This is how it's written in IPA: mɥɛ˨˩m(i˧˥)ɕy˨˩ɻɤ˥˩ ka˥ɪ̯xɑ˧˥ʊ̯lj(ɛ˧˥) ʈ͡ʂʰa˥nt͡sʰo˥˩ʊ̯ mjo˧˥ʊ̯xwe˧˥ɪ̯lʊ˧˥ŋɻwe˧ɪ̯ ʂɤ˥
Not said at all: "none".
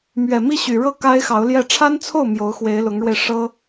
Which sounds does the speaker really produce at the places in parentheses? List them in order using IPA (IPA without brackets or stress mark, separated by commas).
i˥˩, ɛ˥˩